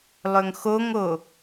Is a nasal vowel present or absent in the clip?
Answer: absent